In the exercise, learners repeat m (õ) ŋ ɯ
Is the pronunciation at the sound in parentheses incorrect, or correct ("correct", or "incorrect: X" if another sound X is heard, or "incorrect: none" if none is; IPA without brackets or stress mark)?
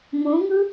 correct